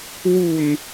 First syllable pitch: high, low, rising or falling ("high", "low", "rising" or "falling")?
low